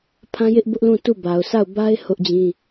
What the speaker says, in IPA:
pʰã˦jɪ˦ʔ bʊ˦ʔlũ˦˨tu˦˨ ba˨ʊ̯ sa˦˨ʊ̯ba˦ɪ̯ hʊ˦ʔd͡ʑĩ˦

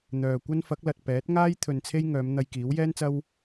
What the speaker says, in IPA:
n̪œː˨kʷɐ˥n fɐ˨˥k̚lɐ˨t̚ pɛː˨˥t̚ŋaː˥j t̪ʰɵ˧nt͡sʰe˥j ŋœː˨˧mn̪ɐ˧j kiː˨˥wjɛː˥nt͡sɐ˥w

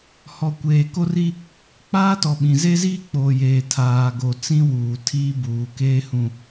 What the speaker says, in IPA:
hɔ˨ kʷeː˨ko˦r i˦ | k͡paː˦tɔ˨ɓĩ˨ ze˦ziː˦k͡poː˨ jeː˨tʰaː˨ɡo˨ t͡sĩ˦wuː˨ tʰiː˦buː˨keː˦hũ˦

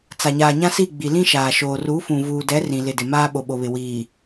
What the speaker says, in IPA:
t͡sa˨ ɲaː˨ɲã˦si˦˨ ɡ͡bi˨lĩ˦ʃaː˨ʃoː˨ ru˨˦fũ˨ vuː˨dɛ˨˦ rĩ˨lɪ˨dɪ˨maː˦ ɓo˨ɓo˨βɪ˨ wiː˨

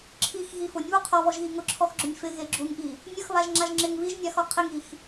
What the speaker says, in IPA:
ǁʰixɣi fʊnʲβu qʰɔβɔʒɣi ŋʊǁʰɔxɡ͡ǁʊnʲ fɪɣe ɡ͡ǁuŋʔi | nʲʊxβaʒŋ͡ǁaʒ ŋ͡ǁɪŋ βiʒnʲaxɔ qʰɪŋix

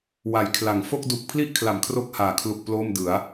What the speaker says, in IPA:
wa˩˦jkʰla˩˦ŋ fo˥˩k̚ du˨˩k̚ pʰli˥˩ʔkʰla˩˦m kʰro˥˩k̚haː˨˩ kʰlu˨˩k̚ ploː˥˩mdɯ˩˦a̯

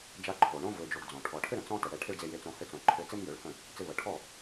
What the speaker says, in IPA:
d͡ʒa˧ǃʰo˨ɳõ˦ vø˧d͡ʒo˧ɡd͡zɔ̃˨ ʈʰɔ˨ʈʰɘ˦ɾə̃˨ t͡sɔ̃˦tə˨ɽɛ˧ ʈʰɪ˦ɭd͡ze˧je˧t͡sõ˧ hɘ˧t͡sõ˨ǃʰɘ˧ t͡sɪ˦mjø˨˦ɭhə̃˦˨ | t͡sɪ˧βə˨ʈʰɔ˦˨

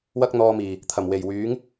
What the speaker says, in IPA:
wɐ˥k̚n̪ɔː˧miː˨˩ | t̪ʰɐ˨˩mwe˨˩jwyː˨˥ŋ

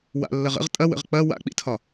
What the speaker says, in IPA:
wa̰lːɐʁ ə̰ʁ tʼɐwə̰ʁ k͡pɐ wa̰k͡pḭtʰɒ

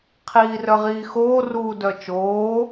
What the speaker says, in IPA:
qʰiːrœʁiːxoː ruːdœt͡ʃoː

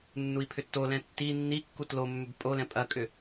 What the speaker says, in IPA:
nːui̯pʰʏtːolɛ̃ tːi nːikːu tlomːʏb pʼolɛ̃ pʼɐkʼʏ

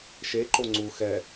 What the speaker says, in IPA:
ʃeǃo ŋ͡ǀu xɛ

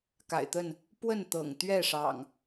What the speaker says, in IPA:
ka̰˨˩ɪ̯t̪ə˥˨n | pwə˥˨nt̪ɤ̰˨˩ŋ t̪ɥɛ˥˨ʂɑ̰˨˩ŋ

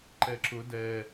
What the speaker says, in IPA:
ǃɛǁʊ dɛ

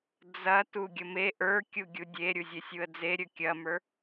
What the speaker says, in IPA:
d͡zɐ tuɡʲəme ʔə˞kʲuɡʲu dʲeɾʲuzʲe sʲuə̯d͡ze ɾʲɵkʲɐmə˞

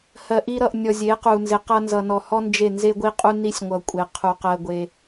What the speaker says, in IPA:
hɜ˨ʔi˧ɾʌ˨ʔ nʲɔ˨ zʲe˨˦qu˨ nze˨qʌ˧nzʌ˨nɔ˨ hɔ˦nd͡ʒe˦˨ nze˧ɡʷi˧qʼu˧ ni˧sʲŋʷʌ˨ kʷʼe˨ qʰu˨qɜ˧ɡʷe˧

